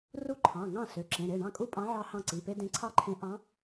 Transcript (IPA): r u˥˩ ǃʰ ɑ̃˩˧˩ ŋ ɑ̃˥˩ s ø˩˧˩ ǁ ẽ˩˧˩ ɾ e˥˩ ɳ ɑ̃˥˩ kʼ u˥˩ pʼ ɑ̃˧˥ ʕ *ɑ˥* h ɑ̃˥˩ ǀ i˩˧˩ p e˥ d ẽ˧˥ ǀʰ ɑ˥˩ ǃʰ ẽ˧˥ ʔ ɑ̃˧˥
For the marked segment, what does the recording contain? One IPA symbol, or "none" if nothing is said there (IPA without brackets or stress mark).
ɑ˥